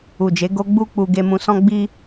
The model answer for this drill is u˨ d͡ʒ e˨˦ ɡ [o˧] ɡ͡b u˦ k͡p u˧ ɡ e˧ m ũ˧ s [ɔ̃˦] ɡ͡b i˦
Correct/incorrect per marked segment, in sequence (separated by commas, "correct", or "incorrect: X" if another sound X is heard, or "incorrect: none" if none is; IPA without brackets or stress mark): correct, correct